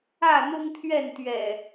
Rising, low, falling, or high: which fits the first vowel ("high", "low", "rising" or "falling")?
falling